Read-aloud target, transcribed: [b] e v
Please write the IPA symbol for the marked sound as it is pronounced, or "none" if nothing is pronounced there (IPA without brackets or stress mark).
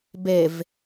b